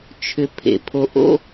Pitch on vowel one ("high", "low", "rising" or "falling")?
low